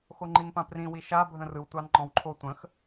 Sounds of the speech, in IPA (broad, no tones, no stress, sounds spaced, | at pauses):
x o ŋ͡ǃ i n p ã p r ĩ w i ʃ a bʱ ə̃ r ɯ w tʷ ɑ n ŋ͡ǃ ɔ̃ w ǃʰ o tʷ ə̃ x